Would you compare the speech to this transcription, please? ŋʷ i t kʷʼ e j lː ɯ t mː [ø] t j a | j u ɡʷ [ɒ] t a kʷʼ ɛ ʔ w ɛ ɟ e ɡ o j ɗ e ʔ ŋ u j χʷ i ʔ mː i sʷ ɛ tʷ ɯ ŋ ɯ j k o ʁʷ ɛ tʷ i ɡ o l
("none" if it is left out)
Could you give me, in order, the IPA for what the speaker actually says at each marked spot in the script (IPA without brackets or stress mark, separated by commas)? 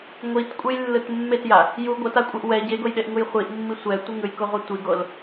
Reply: e, ʌ